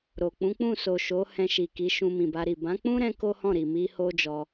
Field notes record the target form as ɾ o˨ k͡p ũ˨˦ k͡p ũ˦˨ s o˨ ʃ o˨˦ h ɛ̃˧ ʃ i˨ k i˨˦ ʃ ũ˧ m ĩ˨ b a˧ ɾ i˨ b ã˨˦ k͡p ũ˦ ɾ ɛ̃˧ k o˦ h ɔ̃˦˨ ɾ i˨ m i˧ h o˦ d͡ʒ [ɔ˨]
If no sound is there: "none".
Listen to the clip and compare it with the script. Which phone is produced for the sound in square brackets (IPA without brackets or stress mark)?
ɔ˧